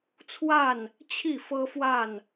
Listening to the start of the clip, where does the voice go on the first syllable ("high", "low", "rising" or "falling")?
falling